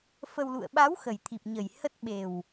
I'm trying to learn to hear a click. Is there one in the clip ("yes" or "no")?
no